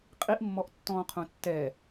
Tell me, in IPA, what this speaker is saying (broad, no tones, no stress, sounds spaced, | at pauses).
qʼ i ʔ mː ɔ ʔ tː ɔ̃ː qʰ ũ tː ɛ